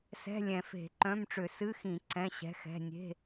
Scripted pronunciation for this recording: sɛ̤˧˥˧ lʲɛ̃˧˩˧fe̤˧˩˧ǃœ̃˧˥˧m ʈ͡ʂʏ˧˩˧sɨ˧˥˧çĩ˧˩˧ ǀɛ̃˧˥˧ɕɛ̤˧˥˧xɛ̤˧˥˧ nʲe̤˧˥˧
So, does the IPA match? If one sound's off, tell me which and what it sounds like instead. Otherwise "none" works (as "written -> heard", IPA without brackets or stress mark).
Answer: ç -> x